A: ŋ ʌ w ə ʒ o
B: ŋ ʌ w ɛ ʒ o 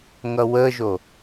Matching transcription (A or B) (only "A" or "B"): A